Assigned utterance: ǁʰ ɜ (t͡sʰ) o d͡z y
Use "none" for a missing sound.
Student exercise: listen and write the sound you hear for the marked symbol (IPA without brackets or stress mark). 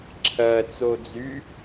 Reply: t͡s